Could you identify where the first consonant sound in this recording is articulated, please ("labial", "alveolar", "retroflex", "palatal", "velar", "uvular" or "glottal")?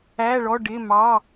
retroflex